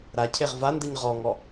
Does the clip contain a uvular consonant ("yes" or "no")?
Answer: yes